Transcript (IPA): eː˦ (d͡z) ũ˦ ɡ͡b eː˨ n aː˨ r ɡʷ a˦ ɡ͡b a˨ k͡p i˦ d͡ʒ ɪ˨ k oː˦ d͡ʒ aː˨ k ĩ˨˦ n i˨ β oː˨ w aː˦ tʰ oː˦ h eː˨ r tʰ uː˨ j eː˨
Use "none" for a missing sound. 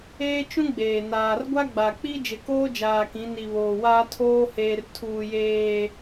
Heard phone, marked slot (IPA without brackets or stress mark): t͡ʃ